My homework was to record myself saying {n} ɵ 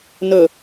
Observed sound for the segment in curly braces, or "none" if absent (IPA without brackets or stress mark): n